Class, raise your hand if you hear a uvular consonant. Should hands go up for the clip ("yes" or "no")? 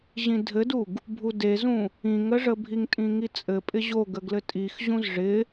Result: no